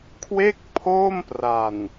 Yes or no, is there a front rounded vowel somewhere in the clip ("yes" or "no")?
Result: no